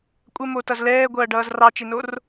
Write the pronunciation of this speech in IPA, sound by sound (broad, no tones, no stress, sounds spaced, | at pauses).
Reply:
kʷʼ ɐ m o t ʌ z l ɛː ɡʷ ʌː ɖ ʌː z r ɑ t͡ʃ e n o r